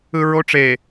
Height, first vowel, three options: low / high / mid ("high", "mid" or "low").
high